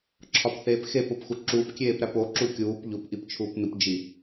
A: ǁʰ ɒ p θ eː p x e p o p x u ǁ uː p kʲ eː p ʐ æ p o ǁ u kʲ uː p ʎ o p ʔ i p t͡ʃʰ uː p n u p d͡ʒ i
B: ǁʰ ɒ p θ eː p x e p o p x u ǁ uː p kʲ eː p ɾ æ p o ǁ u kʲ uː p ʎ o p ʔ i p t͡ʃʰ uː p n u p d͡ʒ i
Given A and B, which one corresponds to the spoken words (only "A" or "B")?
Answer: B